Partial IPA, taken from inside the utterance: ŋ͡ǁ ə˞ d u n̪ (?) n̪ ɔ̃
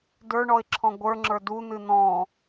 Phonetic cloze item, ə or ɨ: ɨ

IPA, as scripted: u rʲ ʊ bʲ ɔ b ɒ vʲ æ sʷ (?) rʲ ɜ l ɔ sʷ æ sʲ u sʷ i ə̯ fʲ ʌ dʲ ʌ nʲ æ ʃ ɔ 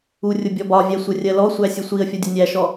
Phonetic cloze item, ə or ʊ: ə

